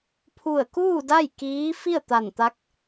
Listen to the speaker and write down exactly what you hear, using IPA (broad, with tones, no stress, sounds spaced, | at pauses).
pʰ u˧˩ ə̯ k uː˥˨ d a˥˨ j k iː˧˥ f i˥˨ ə̯ t̪ a˧˩ n t̪ a˧˥ k̚